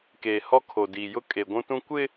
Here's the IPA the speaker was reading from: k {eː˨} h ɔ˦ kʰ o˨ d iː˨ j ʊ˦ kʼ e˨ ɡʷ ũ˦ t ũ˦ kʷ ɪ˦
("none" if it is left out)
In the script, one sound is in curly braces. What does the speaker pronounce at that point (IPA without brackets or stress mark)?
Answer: eː˨